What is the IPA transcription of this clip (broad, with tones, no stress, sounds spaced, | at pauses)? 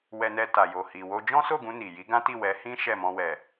w ɛ˧ n ɛ˧ t a˨ j o˨ h i˨ w o˧ d͡ʒ ɔ̃˦ s o˦˨ ɡ ũ˧ n i˨ j i˨˦ ɡ ã˦ t i˦˨ w ɛ˨˦ h ĩ˦ ʃ ɛ˦˨ m ɔ̃˧ w ɛ˨